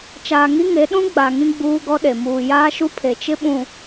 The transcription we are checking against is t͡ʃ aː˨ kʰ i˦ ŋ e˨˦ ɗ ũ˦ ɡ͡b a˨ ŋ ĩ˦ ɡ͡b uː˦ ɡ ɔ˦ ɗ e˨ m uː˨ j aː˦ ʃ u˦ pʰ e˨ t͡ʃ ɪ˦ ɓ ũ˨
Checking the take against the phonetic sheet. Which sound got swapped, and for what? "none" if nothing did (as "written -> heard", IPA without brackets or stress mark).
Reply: kʰ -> ŋ